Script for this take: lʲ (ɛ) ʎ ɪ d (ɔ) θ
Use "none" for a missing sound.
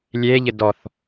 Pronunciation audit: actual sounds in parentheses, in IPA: e, ɔ

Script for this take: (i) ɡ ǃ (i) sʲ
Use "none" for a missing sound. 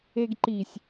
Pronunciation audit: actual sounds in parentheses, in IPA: e, i

